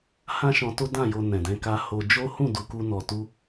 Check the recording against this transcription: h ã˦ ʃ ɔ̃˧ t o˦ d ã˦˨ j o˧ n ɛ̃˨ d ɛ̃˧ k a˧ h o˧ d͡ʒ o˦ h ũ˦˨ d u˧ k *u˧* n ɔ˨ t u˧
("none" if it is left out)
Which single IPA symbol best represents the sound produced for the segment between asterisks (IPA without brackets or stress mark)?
u˧